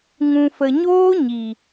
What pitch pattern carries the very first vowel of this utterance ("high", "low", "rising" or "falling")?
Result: low